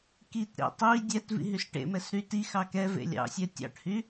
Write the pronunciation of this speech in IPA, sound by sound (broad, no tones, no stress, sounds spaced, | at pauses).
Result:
k i t ɾ ḛ tˤ i dʲ ɛ t v ḭ ɦ y s ʈ ḛ m ɛ s ɾ y t i x ɑ k ɛ v ḛ lʲ ɑ̰ sʲ ɛ tʲ ɑ̰ ʈ h y